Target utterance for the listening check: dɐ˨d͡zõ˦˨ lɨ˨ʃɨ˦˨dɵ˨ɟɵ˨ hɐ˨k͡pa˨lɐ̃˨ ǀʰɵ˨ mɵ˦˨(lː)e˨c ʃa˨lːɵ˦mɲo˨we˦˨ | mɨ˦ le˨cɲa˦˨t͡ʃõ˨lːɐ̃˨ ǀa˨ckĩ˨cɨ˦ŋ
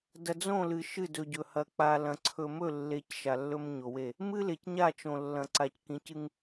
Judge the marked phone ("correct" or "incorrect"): correct